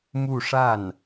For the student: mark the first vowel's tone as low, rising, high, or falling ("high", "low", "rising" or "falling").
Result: falling